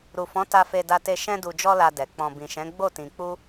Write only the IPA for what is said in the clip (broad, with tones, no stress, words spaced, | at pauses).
ɾu˨fɔ̃˨˦ ta˧fe˧da˧te˧ ʃɛ̃˧du˨d͡ʒɔ˧la˨ dɛ˨ k͡pɔ̃˨ bĩ˨ʃɛ̃˨˦ ɡ͡bo˦˨tĩ˧ k͡pu˦